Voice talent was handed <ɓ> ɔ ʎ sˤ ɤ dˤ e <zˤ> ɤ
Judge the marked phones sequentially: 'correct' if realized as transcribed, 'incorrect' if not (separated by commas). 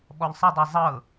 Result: correct, correct